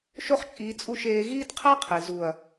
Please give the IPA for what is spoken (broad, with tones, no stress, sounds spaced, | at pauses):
ʃ o˦ χ t͡ʃʼ iː˧ t͡sʼ u˦˨ ʃ eː˧ ɣ iː˦ d qʰ æ˦ qʰ e˨ z u˨ ɐ̯